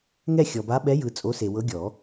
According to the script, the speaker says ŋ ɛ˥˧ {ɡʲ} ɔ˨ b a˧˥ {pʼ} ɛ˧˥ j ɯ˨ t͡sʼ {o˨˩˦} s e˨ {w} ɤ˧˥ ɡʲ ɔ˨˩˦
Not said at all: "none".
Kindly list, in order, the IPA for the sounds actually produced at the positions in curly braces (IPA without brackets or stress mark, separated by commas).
xʲ, ɓ, o˧˥, w